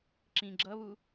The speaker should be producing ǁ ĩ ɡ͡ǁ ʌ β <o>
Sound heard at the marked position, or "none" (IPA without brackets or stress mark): u